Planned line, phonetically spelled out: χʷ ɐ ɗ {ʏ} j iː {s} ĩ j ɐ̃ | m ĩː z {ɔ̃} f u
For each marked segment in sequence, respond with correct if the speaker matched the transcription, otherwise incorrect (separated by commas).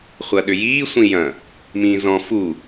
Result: correct, incorrect, correct